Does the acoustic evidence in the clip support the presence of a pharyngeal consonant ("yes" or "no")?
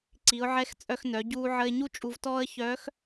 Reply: yes